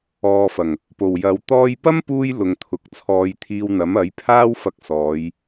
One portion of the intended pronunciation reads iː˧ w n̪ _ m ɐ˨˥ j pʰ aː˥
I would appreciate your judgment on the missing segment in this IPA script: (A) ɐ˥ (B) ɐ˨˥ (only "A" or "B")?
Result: B